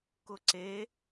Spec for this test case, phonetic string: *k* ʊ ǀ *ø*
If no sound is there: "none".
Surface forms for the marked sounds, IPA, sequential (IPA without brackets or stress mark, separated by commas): k, e